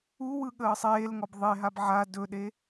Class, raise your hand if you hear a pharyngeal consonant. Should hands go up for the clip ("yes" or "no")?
yes